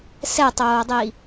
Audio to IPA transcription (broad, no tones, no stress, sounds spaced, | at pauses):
s ɛ tˤ oː dˤ i